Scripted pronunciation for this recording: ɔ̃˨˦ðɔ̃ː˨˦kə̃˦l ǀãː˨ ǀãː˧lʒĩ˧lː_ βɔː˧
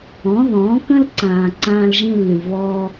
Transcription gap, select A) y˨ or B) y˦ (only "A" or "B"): A